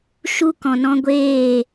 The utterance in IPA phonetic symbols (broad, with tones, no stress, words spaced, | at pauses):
ʃu˦kɔ̃˨nɔ̃˦ ɡʷeː˦˨